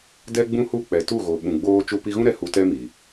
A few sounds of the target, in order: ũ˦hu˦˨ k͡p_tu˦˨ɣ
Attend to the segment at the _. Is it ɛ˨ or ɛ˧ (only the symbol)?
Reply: ɛ˨